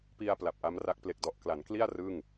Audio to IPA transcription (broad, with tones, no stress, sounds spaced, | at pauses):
p i˧ a̯ p l a˨˩ p̚ ʔ a˦˥ m r a˦˥ k̚ p l e˨˩ k̚ d ɔ˨˩ ʔ k l a˩˦ n k l i˥˩ a̯ r ɯ˥˩ ŋ